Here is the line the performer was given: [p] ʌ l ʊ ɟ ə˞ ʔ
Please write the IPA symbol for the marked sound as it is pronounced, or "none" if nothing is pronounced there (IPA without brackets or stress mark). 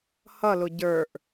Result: h